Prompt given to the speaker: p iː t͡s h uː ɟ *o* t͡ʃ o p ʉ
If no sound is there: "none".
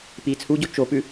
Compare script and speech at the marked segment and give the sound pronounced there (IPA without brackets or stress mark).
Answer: o